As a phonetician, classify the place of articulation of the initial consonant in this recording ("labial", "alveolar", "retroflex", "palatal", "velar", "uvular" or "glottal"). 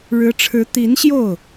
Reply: retroflex